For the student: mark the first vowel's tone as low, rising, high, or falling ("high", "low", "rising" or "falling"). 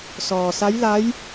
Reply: low